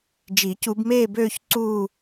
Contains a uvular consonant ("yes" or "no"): no